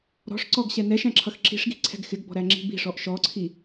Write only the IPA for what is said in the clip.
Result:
ɾ ɔ̤ ʂ ǀ ɔ ɡ ɕ ɛ n ɛ ʃ æ̃ ǁʰ ʌ x ǁ i̤ ʂ ɡ i̤ ǀʰ ɛ̤ ɡ x ɪ ɡ b ɔ̤ ɾ æ ŋ͡ǁ i̤ b i̤ ʂ ɔ ʔ ʃ ɔ ǀʰ i

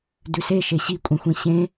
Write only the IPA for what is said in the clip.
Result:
d ʉ s e ʃ e ɕ i kʷʼ ĩ xʷ ĩ ɕ ẽ

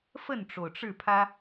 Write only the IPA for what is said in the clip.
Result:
f ə˥˨ n ʈ͡ʂ o˩ ʊ̯ ʈ͡ʂ ɻ̩˥˨ pʰ ä˦

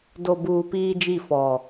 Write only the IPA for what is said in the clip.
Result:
d o˨ b uː˨ p iː˦ d͡ʒ i˦˨ f ɔ˨

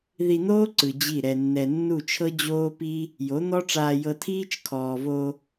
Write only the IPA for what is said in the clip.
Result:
ð i˧ n̪ oː˦ ǀ ɯ˨ d͡ʑ i˦˨ ɾ ɛ˧ nː ɛ˧ nː u˦˨ t͡ʃʰ ɤ˦ d͡ʑ oː˦ p i˦ | j o˨˦ n̪ ɔ˦ ʈ͡ʂ aː˧ j ɤ˧ tʰ iː˦ t͡ʃ kʰ ɔː˨ v o˧

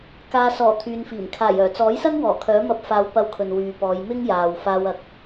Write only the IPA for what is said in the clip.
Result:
k aː˨ s ɔː˨˩ t̪ʰ yː˨ n f iː˨˩ m kʰ aː˨˩ j œː˨˩ t͡s ɔː˨˥ j s ɐ˥ ŋ w ɔː˨˩ kʰ œː˨˥ m ɐ˧ p̚ f aː˨˧ w p ɐ˧ w kʰ ɵ˨ n w yː˨ p ɔː˨˧ j m ɪ˥ ŋ j aː˨ w f aː˧ w ɐ˨ k̚

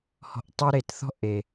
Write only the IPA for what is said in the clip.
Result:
h ɔ̤˧ ʔ tˤ ɯ˦ ɾ e˨ t θ ɔ̤˦ ʔ e˨

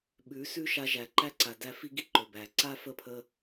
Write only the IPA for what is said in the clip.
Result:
ɓ ʉ˨˦ s ʉ˦ ʃ a˧ ʒ æ˨ ǃ æ˦ ǀ a˨ d æ˧ f i˦ ɡ i˦ ǃ ɵ˨ b æ˨ ǀ a˦ f ə˦˨ pʰ ə˧

